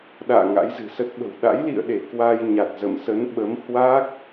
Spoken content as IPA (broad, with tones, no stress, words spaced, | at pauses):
ɗa̰ː˧˨ ŋa̰˧˥jzɨ̤˨˩sə˦˥t̚ɓə̤˨˩w ɗa̰˧˥jlḭ˧˨ə̯ɗe˧˩ kwa˧jɲa˨˩t̚ zə̰˧˨msə˨˦n ɓə˨˦m hwa˦˥k̚